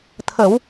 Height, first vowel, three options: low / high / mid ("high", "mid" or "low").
mid